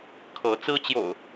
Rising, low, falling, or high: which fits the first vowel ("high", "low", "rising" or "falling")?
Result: rising